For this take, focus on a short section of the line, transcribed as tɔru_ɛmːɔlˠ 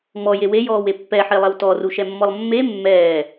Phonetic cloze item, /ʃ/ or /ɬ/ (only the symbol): ʃ